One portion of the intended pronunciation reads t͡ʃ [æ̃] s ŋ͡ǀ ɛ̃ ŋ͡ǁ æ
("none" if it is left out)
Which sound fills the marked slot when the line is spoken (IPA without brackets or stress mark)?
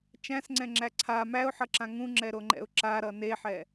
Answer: æ̃